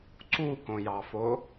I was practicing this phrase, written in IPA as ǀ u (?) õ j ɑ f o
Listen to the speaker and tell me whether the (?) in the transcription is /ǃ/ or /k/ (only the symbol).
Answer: k